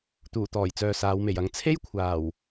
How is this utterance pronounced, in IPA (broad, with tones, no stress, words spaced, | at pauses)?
t̪uː˨˩t̪ɔː˨˩jt͡sœː˨ saː˨˧wme˨˩jɐ˨˥ŋ t͡sʰe˥j kʷʰaː˨˩w